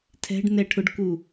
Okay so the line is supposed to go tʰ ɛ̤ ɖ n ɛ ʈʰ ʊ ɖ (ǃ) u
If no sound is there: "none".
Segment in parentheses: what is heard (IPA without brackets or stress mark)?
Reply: k